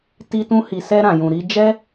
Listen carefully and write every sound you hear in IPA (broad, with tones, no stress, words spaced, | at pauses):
ti˧tũ˧hi˨ sɛ˧ɾã˨jũ˨ ɾi˧d͡ʒɛ˦